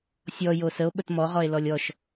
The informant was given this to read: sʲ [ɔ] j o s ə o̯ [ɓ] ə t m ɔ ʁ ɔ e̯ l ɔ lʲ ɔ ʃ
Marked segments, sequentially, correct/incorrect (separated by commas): correct, correct